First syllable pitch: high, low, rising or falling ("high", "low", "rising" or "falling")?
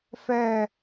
falling